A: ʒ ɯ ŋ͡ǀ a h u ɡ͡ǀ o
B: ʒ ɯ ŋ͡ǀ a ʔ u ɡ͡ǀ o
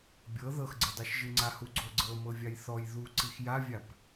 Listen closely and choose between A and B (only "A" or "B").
A